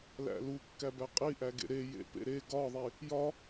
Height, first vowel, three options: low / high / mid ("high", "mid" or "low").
low